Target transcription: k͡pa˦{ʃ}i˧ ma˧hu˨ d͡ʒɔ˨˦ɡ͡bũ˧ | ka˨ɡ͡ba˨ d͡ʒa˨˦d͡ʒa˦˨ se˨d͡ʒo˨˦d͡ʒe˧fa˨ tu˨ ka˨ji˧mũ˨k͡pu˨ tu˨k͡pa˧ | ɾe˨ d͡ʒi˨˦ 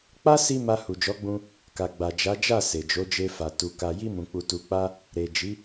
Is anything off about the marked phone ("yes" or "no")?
yes